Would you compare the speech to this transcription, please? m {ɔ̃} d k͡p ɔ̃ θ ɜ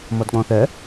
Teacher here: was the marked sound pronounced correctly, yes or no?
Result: no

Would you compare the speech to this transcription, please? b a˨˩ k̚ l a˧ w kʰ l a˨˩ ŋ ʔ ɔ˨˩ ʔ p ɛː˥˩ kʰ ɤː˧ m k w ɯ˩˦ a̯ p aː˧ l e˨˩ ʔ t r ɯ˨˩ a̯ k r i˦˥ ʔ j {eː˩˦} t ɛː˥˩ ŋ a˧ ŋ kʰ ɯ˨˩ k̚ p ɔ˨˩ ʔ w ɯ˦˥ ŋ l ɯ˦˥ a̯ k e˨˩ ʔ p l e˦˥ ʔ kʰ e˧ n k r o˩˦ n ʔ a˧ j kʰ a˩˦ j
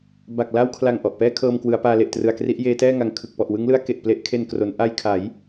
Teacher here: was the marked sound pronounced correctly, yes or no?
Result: no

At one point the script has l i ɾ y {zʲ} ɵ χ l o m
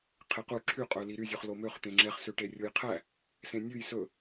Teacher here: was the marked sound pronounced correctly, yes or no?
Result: yes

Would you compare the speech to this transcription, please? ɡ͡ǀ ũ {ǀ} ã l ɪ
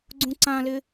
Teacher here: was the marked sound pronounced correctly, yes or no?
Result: yes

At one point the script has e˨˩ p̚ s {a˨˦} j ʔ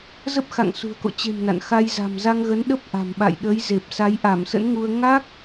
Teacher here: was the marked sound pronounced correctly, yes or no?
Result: yes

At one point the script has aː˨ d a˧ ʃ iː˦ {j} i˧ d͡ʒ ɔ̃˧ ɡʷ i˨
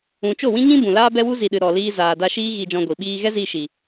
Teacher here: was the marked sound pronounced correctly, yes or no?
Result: no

